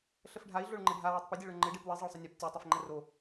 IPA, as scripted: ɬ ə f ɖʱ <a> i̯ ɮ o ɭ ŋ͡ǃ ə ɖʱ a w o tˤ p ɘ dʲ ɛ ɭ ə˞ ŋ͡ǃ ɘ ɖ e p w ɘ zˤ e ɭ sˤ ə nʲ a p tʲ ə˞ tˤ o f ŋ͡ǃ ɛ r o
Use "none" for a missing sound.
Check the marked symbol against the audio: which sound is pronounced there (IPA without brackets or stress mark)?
a